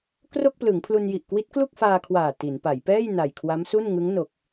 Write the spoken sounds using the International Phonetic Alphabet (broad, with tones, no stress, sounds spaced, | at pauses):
k r o˥˩ k̚ p l ɯ˩˦ ŋ pʰ l u˧ n j i˨˩ ʔ k w i˦˥ t̚ k l u˥˩ k̚ f aː˧ kʰ w aː˨˩ t i˩˦ n p a˩˦ j p ɛː˥˩ j n a˨˩ j kʰ w a˦˥ m s u˥˩ n ŋ ɯ˦˥ ŋ n o˨˩ k̚